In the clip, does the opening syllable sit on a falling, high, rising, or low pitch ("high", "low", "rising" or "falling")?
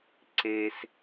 low